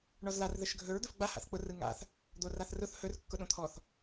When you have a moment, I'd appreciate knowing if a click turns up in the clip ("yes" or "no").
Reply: no